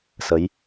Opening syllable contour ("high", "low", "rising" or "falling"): rising